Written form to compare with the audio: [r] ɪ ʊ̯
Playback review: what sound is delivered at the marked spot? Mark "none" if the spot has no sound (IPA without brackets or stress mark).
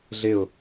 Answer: ɮ